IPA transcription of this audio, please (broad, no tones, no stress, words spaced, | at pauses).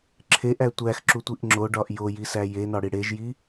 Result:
ǁʰeʔæ tʷæxǁutʷiʔ ŋ͡ǁoɖɒʔ jojisæ jenɒɽi ɽeʒji